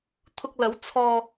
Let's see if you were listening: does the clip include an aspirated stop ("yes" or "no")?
yes